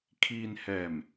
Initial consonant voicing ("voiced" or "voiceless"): voiceless